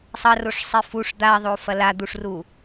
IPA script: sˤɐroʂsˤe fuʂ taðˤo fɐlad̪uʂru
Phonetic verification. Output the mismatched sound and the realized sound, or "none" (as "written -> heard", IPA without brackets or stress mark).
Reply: t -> d̪